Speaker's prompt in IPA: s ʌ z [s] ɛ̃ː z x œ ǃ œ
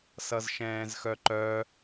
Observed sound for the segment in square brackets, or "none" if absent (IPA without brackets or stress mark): ʃ